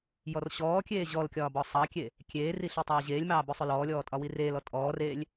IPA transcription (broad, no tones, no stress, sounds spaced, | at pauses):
j ɔ r ɕ ɔː kʲ eː ʑ ɔ l kʲ ɒː b ɔ sˤ ɑ kʲ e | kʲ eː r i ɬ i tˤ ɑː ʑ eː lʲ m ɑː b ʊ sˤ ʊ l ɔː lʲ ɔː tʼ ɒ w i r eː l ɔ tʼ ɔː r eː lʲ